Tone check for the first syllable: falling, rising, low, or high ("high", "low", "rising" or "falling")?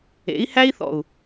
rising